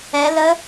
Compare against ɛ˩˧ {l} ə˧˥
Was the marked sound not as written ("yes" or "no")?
no